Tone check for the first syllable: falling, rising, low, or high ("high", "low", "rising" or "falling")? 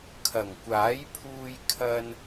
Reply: low